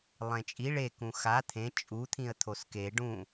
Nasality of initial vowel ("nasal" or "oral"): nasal